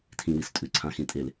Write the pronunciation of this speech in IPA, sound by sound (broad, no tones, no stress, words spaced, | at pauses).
tʰĩwistʼʉ ǀʰãxĩtʼel